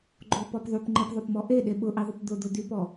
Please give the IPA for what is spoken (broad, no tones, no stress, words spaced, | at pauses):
ɡ͡ǃopɔp ðˤypŋ͡ǃepðˤopmɔ ʔeɗe ɓʊʔiðˤʊp d̪ʊd̪ʊ d̪ypɔ